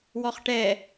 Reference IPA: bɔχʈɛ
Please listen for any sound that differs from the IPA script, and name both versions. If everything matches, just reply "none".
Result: b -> w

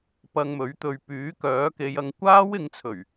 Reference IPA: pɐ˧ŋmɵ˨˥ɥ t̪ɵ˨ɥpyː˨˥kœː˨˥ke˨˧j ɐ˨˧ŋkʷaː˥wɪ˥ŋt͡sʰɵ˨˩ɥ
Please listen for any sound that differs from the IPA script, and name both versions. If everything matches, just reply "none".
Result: ɪ˥ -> ɪ˨˧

